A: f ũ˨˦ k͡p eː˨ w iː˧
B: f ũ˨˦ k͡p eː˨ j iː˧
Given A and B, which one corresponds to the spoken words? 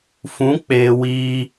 A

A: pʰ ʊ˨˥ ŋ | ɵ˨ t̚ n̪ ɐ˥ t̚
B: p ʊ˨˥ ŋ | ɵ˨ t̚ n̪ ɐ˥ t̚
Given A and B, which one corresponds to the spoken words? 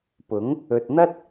B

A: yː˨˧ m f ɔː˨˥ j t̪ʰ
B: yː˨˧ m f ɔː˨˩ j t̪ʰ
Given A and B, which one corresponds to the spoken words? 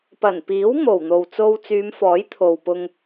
A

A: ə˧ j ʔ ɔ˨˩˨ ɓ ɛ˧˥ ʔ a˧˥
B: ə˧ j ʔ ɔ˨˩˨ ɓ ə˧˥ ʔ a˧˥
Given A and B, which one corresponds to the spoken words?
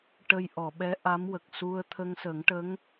A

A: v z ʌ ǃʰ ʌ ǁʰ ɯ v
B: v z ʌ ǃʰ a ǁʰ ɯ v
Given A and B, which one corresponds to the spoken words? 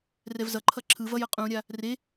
A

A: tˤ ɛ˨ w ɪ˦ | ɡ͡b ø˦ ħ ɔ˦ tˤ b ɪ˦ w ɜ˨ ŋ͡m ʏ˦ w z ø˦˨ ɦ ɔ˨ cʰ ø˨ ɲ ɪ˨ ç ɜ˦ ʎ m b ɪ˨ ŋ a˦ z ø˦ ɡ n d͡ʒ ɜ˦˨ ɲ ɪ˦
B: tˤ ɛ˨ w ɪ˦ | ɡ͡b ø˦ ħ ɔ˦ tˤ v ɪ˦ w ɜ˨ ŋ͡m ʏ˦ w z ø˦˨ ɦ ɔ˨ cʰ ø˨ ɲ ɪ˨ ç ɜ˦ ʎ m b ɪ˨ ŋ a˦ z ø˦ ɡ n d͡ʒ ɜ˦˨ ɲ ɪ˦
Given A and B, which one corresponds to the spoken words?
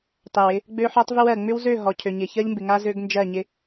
B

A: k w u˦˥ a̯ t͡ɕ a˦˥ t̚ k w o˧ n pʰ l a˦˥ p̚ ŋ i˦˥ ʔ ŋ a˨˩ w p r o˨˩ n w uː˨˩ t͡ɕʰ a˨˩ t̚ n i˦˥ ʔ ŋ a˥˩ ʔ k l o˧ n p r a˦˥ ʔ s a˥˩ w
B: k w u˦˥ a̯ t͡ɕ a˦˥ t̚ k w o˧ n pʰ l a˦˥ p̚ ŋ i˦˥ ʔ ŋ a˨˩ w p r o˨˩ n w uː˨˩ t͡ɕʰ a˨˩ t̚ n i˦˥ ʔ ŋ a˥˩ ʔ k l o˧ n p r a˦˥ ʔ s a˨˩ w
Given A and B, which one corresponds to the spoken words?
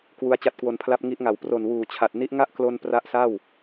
A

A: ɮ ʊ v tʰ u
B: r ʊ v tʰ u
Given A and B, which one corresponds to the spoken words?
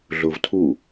A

